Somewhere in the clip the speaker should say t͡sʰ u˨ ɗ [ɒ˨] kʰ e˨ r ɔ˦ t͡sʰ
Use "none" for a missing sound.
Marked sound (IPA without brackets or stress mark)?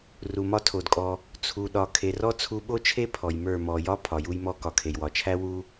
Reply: ɒ˨